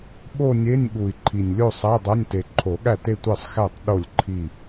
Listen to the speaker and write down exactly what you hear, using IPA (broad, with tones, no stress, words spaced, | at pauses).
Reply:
ɓo˥˧nʲe˧˥˧nʲ ɠu˨˩i̯ǃʰi˨˩nʲlʲo˥˧ sˤæ˧˥˧dˤæ˧˥˧nʲte˨˩ ǃʰo˨˩˦ɠæ˥˩te˥˧ tʷe˥˩sˤxæ˥˩tˤ ɗo˥˩lʲǃʰi˥˩